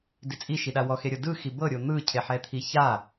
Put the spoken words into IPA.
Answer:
d i t͡sʼ i ʃ i ɗ a w ɔ x e ɾʲ ɤ d ɯ x i b ɤ ɾʲ o n̪ ɯ cʰ e ħ ɛ t̪ʰ i ç a

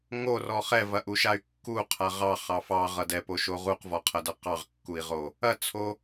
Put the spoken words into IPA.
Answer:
ŋ o r ɔ χ ɛ v ɐ ʔ u ʃ a y̯ kː u qʰ a ʁ ɑ χ ɑ f ɑ ʁ ʌ d ɛ p o ʃ o ʁ u q v ɔ qʰ ɐ d ʌ q ɑ ʁ kː u i̯ ʁ o | ɐ t͡sʰ o

